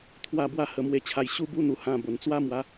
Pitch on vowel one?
falling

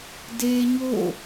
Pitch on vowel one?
high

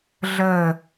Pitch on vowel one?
falling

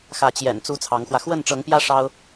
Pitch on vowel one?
rising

